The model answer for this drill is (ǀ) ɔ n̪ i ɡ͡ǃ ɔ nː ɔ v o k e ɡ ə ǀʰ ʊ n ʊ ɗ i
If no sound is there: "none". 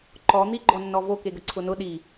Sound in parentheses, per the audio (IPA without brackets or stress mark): ǃ